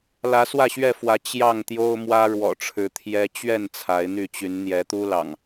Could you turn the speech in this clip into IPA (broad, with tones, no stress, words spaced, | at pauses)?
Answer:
lä˨˦swä˥˨ɕɥɛ˥˨fwä˨˦ t͡ɕjɑ˥˨ŋt̪jo˦ʊ̯ mwä˦ɻwɔ̰˨˩ʈ͡ʂʰɻ̩˨˦ t̪ʰjɛ˦ t͡ɕɥɛ˥˨n t͡sʰa˨˦ɪ̯n̪y˥˨t͡ɕy˨˦n n̪jɛ˨˦t̪u˦ lɑ̰˨˩ŋ